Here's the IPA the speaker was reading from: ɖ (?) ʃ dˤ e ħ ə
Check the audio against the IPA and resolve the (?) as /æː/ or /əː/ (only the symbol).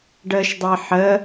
əː